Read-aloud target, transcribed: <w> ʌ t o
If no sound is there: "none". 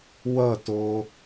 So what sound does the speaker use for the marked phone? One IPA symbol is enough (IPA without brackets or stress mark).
w